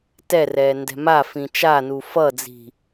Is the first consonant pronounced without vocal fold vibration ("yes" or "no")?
yes